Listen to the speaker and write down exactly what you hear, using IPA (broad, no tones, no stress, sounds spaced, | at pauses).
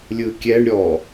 lʲ ɯ kʲ ɛ ɳ ɾʲ ɔ